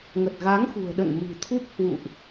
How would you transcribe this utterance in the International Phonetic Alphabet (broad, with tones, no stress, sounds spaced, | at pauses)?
ŋ ə˨˩ t̚ ɣ a˨˦ ŋ x ṳ˨˩ ə̯ ɗ ə̰˧˨ n m ɨ̤˨˩ t̪ʰ u˦˥ p̚ h w ṵ˧˨ ʔ